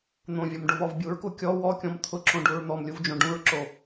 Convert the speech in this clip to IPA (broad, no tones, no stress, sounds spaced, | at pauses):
n̪ õ vʲ ɔ m ɖ o v ɔ v bʲ u ɹ k u kʲ ɔ w ɔ kʲ ɔ̃ m t̪ʰ ʊ ǁ õ ɖ u ɹ n̪ ɔ m lʲ u v d͡ʒ õ ɖ ũ ɹ ǁ o